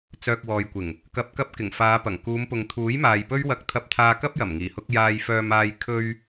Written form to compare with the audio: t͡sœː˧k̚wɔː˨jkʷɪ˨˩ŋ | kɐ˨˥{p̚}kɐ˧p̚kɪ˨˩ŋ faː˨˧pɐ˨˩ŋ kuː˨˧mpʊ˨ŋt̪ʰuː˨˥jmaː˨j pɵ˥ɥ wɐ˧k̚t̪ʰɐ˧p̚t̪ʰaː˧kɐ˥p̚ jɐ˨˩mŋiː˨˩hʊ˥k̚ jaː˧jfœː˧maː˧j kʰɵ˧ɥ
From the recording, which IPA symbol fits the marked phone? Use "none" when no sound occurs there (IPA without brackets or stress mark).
p̚